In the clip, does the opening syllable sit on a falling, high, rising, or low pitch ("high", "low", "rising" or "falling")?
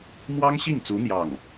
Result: high